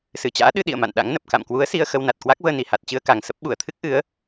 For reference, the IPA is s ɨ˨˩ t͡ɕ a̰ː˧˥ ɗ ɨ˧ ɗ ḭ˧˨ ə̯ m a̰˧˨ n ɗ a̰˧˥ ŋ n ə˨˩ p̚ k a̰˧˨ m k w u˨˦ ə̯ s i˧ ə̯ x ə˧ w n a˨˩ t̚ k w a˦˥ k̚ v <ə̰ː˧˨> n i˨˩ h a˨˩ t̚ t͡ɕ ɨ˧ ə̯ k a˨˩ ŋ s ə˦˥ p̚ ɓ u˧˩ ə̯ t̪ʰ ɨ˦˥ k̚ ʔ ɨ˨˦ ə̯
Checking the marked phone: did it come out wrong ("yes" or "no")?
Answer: yes